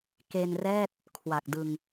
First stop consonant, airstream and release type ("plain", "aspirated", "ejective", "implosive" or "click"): plain